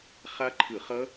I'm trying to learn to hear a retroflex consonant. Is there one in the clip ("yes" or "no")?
no